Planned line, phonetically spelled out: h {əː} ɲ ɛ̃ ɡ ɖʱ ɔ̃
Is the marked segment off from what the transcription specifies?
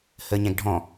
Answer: no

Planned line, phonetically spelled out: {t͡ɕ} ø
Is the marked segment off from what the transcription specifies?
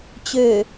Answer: no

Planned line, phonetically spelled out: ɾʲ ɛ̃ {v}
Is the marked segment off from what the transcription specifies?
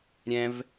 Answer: no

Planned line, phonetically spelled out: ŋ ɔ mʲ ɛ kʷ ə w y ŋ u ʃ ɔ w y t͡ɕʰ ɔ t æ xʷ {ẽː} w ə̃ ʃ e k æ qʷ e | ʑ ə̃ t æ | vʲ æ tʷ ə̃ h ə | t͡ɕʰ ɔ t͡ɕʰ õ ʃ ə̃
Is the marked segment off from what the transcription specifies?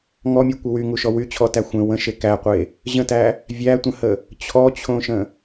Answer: yes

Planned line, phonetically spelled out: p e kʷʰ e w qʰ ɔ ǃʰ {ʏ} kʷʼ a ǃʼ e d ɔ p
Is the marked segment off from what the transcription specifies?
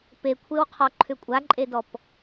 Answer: no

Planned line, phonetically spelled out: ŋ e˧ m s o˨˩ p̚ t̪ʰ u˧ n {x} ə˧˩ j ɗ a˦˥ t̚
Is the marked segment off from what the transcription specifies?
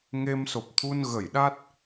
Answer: yes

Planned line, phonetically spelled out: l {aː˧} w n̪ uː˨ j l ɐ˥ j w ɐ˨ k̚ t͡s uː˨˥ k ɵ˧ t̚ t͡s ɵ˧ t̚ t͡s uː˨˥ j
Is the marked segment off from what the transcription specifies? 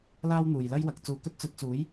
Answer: yes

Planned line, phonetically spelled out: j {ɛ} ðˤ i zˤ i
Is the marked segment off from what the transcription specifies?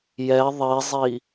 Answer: no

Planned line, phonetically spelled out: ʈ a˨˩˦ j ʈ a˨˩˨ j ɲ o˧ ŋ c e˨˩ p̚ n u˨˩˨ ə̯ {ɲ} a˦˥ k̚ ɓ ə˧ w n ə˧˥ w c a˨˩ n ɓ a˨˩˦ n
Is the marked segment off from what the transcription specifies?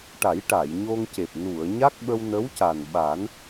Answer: no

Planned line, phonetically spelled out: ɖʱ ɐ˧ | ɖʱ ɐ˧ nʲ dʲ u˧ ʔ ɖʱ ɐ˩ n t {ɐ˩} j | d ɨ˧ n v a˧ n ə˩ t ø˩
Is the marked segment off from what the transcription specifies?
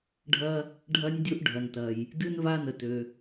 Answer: no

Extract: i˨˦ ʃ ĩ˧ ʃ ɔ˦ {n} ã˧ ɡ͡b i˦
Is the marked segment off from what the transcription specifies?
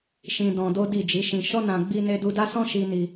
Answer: no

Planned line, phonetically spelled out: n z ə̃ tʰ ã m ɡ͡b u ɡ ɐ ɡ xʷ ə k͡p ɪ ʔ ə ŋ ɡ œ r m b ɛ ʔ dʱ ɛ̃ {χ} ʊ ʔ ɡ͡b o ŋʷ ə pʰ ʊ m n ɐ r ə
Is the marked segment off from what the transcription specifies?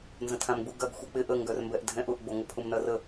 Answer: yes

